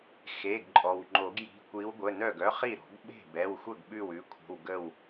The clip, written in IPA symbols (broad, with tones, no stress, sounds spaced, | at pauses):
x e˩˧˩ ɡ ǃʼ ɔ˩ w ŋ͡ǃ o˨˩˦ ɡ j i̤˩˧˩ kʷ i˨˦ w ɡʷ ə˩˧˩ n œ˥˩ ɡ œ˥ χ i˥˩ ɾ ɔ̤˨˩˦ ɡ ɓ e̤˥˩ b ɛ˩˧˩ w xʷ ə˥˩ ɡ ɓ ʉ˥˩ w ʉ˨˦ kʷʰ ə̤˩˧˩ w ɡ ə˥˩ w